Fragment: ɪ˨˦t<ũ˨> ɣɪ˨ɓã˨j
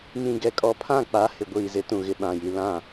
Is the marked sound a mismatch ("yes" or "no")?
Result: no